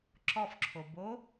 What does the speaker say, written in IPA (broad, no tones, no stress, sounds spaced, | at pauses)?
ǁ ɔ f ǁʰ o b o